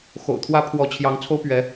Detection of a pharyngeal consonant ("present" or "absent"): absent